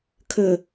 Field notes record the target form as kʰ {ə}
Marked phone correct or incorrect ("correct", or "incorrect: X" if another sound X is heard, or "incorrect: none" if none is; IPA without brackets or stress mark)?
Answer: correct